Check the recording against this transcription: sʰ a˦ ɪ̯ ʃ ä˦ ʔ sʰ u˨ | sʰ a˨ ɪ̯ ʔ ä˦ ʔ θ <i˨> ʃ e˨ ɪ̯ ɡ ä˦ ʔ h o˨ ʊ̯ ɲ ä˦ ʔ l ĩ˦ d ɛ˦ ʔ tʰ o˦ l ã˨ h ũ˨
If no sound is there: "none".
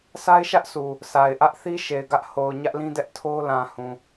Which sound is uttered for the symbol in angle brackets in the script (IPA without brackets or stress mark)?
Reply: i˦